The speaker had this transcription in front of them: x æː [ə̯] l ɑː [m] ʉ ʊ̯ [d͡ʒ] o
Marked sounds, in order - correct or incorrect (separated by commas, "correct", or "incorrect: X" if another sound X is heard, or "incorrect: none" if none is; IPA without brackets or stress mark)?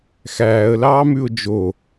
correct, correct, correct